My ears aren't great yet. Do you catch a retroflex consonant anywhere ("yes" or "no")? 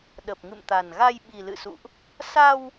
no